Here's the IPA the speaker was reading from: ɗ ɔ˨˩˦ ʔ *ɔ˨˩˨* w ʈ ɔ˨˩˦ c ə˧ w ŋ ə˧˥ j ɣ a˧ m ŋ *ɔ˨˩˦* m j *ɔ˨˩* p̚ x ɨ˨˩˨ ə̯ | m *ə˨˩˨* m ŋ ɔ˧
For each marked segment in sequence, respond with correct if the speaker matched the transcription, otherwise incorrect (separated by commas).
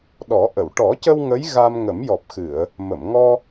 incorrect, incorrect, correct, correct